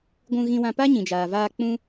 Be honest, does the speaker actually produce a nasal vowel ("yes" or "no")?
yes